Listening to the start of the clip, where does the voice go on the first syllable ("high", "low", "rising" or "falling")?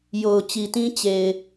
low